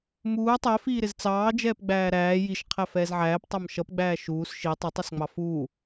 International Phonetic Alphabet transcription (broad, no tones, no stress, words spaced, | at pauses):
muː tˤɛfiːɾɪz t͡sɑːd͡ʒɛːp ɡ͡bæːɾæː jiʃqʰæ fɛːzʕæːptˤæm ʃʌpɡ͡bæː ʃuːs ʃi tˤʊtˤisŋ͡mɑ fuː